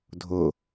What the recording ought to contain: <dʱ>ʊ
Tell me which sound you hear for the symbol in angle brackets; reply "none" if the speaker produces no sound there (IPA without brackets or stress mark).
dʱ